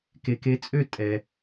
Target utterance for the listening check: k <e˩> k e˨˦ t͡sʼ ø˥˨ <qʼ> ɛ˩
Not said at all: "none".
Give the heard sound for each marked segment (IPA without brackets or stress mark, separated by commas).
e˩, tʼ